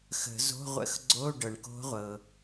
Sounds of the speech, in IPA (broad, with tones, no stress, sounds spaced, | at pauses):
x ə̤˨˩˦ z o̤˧˥˧ ʁʷ ə̰˧˥˧ x ɡ͡ǀ o˧˥˧ ɖ ɤ˩ ɳ k o̤˧˥ ʁʷ ɤ˩